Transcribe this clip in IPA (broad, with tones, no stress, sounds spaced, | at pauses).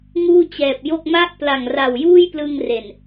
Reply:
ŋ uː˥˩ t͡ɕ ɛː˨˩ p̚ j o˥˩ k̚ m a˥˩ ʔ p l a˨˩ ŋ r a˨˩ w j uː˥˩ j p l ɯ˧ ŋ r e˨˩ n